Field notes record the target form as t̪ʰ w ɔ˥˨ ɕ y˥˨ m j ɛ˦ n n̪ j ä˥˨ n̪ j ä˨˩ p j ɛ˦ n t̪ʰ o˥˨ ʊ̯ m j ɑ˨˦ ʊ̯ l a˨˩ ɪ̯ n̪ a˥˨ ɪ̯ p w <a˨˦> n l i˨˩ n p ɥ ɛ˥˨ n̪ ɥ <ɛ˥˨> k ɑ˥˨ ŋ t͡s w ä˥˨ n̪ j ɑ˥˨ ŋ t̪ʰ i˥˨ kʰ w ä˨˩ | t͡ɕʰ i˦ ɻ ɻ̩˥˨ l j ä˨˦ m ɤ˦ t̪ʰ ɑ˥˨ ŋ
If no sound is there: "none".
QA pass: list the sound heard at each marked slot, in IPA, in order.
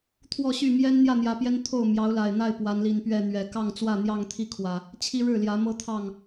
a˨˦, ɛ˨˩

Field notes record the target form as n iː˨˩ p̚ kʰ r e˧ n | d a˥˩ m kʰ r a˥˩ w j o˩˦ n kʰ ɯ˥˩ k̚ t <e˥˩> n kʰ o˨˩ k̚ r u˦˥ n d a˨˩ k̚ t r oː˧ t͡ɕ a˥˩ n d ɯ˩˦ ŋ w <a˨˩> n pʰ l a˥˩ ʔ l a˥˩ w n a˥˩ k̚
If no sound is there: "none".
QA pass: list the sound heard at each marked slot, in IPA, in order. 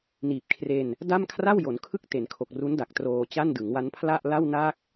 e˩˦, a˦˥

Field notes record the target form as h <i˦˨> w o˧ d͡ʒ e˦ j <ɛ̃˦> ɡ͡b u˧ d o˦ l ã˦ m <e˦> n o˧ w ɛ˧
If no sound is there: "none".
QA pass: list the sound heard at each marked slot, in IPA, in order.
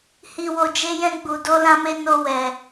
i˧, ɛ̃˦, e˦

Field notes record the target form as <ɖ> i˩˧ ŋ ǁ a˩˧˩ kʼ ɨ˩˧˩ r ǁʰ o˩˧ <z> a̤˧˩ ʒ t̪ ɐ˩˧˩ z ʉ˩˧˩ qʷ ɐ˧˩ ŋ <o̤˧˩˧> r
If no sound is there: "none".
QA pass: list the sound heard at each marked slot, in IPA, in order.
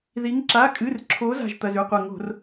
ð, z, o̤˧˩˧

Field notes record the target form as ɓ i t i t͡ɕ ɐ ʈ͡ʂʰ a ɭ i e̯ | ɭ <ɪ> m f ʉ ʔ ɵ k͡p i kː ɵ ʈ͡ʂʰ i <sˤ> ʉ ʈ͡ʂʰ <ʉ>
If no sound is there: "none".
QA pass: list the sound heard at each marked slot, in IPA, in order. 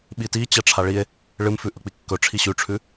ɨ, ɕ, ʉ

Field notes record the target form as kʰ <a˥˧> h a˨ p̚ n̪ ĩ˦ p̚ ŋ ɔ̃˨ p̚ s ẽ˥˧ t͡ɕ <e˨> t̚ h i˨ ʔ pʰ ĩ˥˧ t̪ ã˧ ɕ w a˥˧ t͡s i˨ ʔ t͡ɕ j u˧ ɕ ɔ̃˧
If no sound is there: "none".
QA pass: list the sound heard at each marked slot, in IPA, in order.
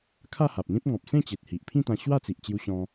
a˥˧, e˨

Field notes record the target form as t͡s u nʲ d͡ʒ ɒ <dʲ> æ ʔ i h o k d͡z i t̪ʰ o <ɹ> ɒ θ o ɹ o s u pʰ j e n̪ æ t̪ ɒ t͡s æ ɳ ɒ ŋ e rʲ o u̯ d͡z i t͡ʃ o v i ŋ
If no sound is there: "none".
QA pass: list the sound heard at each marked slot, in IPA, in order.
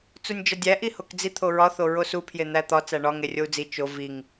dʲ, ɹ

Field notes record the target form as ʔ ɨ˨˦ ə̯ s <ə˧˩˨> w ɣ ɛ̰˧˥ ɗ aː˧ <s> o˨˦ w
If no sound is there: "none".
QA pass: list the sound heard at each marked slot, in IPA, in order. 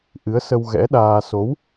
ə˧, s

